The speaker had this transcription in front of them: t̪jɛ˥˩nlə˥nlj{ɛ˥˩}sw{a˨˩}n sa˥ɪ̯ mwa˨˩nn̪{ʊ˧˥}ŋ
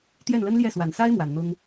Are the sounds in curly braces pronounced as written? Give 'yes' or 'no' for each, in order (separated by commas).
yes, yes, no